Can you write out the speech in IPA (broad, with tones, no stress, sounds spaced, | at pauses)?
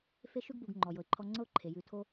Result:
f e˦ ʃ ʉ˦ ɡ b u˨ ɡ ŋ͡ǃ ɔ˨ j ɤ˨ ɪ̯ ǃʰ ɔ˦ ŋ͡ǀ ɤ˦ ʊ̯ ǃʰ e˩ j ʉ˨ tʰ o˥